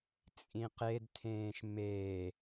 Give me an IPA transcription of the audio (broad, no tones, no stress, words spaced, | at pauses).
t͡sʼĩqedtʰẽːʃ me